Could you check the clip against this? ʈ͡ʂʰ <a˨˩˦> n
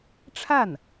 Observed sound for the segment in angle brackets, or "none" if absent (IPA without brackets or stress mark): a˥˩